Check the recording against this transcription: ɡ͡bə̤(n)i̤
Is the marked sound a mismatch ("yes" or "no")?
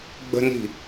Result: no